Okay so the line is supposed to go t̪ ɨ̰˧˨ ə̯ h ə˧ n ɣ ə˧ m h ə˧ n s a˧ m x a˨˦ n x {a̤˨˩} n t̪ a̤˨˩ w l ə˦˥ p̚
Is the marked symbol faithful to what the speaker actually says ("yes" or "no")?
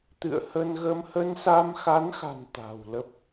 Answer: yes